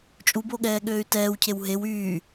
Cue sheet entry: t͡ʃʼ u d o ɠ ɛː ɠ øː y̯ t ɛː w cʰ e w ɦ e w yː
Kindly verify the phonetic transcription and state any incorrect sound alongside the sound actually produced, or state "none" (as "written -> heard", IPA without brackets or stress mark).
d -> b